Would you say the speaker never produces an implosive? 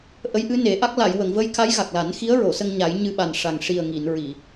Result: no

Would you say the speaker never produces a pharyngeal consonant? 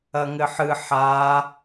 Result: no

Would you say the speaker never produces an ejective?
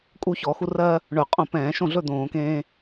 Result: no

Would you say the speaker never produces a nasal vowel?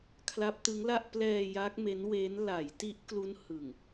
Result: yes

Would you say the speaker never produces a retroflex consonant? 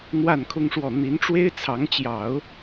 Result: no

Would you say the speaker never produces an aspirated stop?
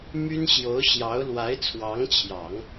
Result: no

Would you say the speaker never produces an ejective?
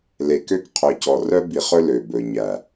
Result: yes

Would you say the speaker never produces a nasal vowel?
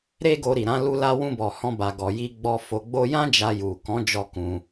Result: no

